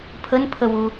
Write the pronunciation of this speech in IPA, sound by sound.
pʰ ə n pʰ ə w u

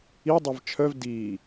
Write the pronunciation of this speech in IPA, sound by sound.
i dˤ ɛ v t͡ʃʰ œ v d iː

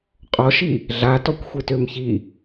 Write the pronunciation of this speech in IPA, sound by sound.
qʼ ɔ ʃ i | ɮ a t ɔ kʷ xʷ e t ø m ç i

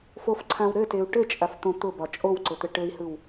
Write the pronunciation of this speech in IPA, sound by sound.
f o f ǀʰ ã w ɾ ɘ t e u̯ ʈ ɘ t͡ʃʼ a f t̪ õ t̪ ʊ b ɒ t͡ʃʼ o w ǀ ʊ t̪ ɘ ʈ ɘ i̯ h ɯ w

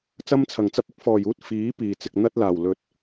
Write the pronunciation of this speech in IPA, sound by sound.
t͡s ɐ˥ m t͡sʰ ɐ˨˩ ŋ t͡s ɐ˥ p̚ ɪ˥ k̚ f ɔː˨˩ j uː˥ t̚ f iː˨˥ p iː˨˩ t͡s ɪ˨ k̚ n̪ ɐ˥ t̚ l aː˨˩ w l ɵ˧ t̚

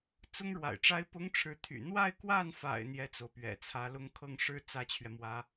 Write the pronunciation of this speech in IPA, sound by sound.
t͡s ʊ˥ ŋ ɻ w a̰˨˩ ɪ̯ ʈ͡ʂ a˥ ɪ̯ p ʊ˥ ŋ ʈ͡ʂʰ ɻ̩˧˥ t̪ʰ y̰˨˩ n̪ w a˥˧ ɪ̯ k w a˥˩ n f a̰˨˩ ɪ̯ n̪ j ɛ˥˩ t͡s o˩ ʊ̯ p ɥ ɛ̰˨˩ t͡sʰ ä˧˥ l ʊ˥ ŋ kʰ ɤ˥˩ ŋ ʂ ɻ̩˥ t͡s ä˥ t͡ɕʰ ɥ ɛ˨ m w ä˧˥

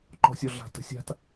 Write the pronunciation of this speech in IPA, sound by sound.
ǃ ɔ̤ sʲ ɔ ɮ a̤ t ə̤ sʲ a̤ t

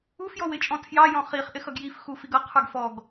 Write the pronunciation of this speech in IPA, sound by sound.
u f j ɔ w ɪ t͡ʃʼ ɔ̃ tʰ j ɑ j ɔ̃ χ i χ ʔ ɪ x ʌ ɡ j i f x u f i ɡ ʌ qʰ ə˞ ɡ f ɔ ɡ

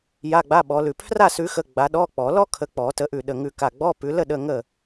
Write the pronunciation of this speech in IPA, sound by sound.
j a˧˥˧ ɡ͡b a˧˥˧ ɓ ɔ˨˦ l ʉ˧˩ pʰ r a˥˨ s ʉ˨˦ x ə˧˥˧ ɡ͡b a˨˦ ɗ ɔ˧˥˧ k͡p ɔ˨˩˦ l ɔ˥ kʰ ə˨˦ k͡p ɔ˨˩˦ t ə˨˦ ʔ ʉ˧˩ ɗ ə˧˩ ŋ ʉ˧˩ k a˧˩ ɡ͡b ɔ˧˥˧ p ʉ˨˦ l ə˥˨ ɗ ə˧˥˧ ŋ ə˥˨

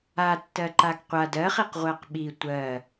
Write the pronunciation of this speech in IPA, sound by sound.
a tː ɜ ǃ a ɡ qʷ a d ɜ χ i q ʁʷ ɜ q ɓ i tʷ ɜ

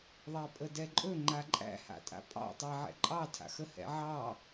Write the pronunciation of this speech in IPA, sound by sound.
ðˤ æ pʼ ə d ɛ ǃʼ ɵ ŋ͡ǃ a ǃʼ æ̰ h a̰ tʼ a̰ pʼ ɑ̰ tˤ ɑ ʕ ɛ̰ ǃʼ ɑ tʰ a̰ x ə h ɛ̰ ʕ ɑ

